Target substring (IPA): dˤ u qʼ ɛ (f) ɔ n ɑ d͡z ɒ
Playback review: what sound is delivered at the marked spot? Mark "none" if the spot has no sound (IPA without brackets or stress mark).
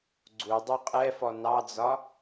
f